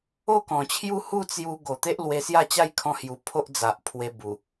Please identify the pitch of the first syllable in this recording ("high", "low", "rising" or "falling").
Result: falling